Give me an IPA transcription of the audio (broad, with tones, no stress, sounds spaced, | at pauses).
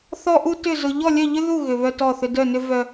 θ ɔ˥ ʔ u˥ t ʏ˥˧ z ʊ˥ ʎ ɔ˥˧ lʲ œ˥˧ ʎ ʏ˥ ð u˥˧ ɣ ʏ˥ β œ˥ t ɔ˥˧ θ ʏ˥ d œ˥˧ n ʏ˥ v œ˥